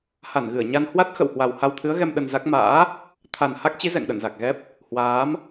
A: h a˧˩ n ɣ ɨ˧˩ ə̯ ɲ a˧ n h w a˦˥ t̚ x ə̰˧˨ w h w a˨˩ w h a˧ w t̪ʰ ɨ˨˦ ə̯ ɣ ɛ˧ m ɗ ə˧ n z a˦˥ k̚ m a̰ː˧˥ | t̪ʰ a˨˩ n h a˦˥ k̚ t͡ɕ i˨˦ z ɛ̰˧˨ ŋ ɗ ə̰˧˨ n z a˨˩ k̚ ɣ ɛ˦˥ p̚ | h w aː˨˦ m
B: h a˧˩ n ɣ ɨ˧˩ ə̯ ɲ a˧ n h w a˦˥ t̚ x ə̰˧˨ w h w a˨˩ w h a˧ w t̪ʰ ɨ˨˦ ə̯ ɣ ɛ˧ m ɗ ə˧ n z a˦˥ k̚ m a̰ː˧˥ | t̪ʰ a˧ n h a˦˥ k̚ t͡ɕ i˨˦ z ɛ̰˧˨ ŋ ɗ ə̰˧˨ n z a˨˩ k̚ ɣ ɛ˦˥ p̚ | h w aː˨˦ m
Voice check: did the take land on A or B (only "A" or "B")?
A